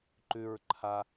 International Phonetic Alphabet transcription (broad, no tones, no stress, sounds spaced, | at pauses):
ǃ ʉ ɹ ǃʰ a